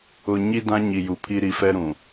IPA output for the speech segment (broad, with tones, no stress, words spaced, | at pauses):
ʊ˨ɲi˦ dã˦ ɲi˨ju˨pʰi˦ ɾi˨fɛ˦ ɾũ˨